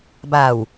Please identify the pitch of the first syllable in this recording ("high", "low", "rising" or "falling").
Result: low